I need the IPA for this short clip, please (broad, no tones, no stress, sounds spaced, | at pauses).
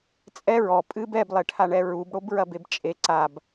t͡sʼ ɛ ɹ ɔ pʼ ɨ b ɛ b lˠ e ʈʰ a ɳ ɛ ɹ u b ɽ o b ɹ ɐ b e b t͡ʃʼ e ǀ a b